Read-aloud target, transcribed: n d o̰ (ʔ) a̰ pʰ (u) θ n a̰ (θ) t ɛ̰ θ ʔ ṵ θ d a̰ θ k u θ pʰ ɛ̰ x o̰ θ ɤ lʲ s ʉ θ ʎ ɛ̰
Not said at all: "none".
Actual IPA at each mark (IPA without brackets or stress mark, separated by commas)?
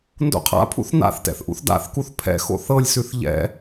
qʰ, ṵ, θ